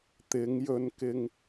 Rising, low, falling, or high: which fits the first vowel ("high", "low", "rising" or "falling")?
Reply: rising